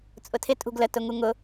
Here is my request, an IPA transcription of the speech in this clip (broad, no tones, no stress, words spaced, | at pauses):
t͡sʼʊtʰɪ tʼṳɡlə tʊŋuŋʊ